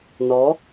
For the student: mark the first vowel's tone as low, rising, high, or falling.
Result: rising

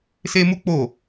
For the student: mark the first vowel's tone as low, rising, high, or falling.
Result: high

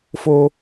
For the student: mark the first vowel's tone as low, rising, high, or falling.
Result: high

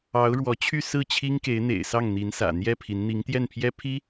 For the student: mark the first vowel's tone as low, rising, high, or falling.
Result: rising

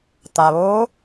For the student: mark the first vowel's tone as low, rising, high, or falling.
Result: low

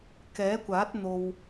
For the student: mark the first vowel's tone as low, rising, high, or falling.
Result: rising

